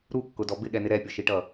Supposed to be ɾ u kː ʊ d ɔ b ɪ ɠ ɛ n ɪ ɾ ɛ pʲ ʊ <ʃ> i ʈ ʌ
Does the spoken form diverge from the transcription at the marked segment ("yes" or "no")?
no